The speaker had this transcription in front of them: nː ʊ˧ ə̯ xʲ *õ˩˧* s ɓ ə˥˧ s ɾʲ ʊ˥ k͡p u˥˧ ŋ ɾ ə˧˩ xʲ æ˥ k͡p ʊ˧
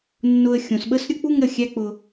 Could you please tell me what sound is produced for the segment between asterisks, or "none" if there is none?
õ˩˧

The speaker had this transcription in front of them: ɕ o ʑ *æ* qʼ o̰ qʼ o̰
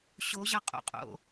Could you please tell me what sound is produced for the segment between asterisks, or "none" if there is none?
a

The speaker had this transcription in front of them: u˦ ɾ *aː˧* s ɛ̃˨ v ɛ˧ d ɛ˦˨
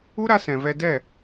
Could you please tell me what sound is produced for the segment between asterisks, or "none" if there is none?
a˧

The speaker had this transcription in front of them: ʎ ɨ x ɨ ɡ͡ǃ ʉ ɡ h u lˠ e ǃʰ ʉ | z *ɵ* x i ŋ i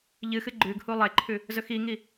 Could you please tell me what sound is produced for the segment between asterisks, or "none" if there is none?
ɵ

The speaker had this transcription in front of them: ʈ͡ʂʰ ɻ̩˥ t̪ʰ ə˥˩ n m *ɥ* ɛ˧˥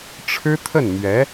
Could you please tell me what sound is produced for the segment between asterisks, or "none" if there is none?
ɥ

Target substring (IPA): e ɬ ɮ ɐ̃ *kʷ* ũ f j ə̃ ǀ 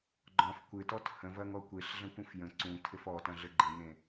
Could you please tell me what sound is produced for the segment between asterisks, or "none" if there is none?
kʷ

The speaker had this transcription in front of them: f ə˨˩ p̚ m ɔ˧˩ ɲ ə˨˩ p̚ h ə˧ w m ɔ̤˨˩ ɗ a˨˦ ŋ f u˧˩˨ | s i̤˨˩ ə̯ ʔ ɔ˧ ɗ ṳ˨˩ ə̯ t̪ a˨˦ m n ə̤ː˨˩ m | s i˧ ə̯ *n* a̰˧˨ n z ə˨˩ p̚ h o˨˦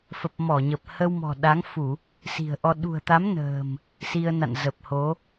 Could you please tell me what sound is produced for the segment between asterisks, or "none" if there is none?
n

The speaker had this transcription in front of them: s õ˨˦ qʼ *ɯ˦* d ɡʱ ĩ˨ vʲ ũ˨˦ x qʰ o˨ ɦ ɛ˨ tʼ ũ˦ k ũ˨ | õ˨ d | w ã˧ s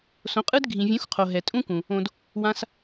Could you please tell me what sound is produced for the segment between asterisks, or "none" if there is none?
ɯ˦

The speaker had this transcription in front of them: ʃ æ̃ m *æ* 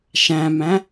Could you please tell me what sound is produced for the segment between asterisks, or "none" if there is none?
æ̃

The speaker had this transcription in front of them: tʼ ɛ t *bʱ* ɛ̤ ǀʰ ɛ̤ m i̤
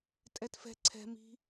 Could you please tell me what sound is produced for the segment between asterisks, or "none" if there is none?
f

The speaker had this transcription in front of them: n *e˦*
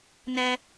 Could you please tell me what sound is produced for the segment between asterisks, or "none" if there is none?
ɛ˦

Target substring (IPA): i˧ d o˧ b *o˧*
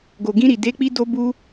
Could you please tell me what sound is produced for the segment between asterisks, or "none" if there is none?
u˧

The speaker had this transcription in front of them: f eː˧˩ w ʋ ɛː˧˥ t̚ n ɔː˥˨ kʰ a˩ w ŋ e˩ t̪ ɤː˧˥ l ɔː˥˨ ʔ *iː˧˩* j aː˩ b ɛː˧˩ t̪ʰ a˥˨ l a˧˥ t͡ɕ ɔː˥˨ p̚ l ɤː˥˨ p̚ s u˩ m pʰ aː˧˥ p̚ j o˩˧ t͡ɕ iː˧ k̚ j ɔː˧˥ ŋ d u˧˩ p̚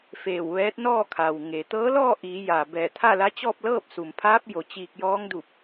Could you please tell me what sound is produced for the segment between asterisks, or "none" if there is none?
iː˩˧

